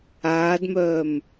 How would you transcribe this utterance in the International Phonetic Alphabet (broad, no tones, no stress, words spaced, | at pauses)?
aːdmœːm